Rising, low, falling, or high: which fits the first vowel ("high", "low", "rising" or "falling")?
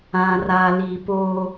low